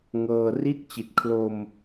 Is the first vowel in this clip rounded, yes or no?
no